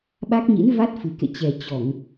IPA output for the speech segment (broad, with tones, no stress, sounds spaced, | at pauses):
ɓ a˦˥ k̚ ɲ ḭ˧˥ n v a˦˥ t̚ f ɨ˨˩ k ḛ˧˨ t͡ɕ ɛ˨˩ t͡ɕ ɔ˧˩˨ ŋ